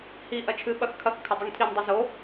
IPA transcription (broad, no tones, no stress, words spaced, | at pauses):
hi ʔɐt͡ʃʰɨ ɓɐxkʰɐx kʰɐdˤuŋtʰin dˤɨzo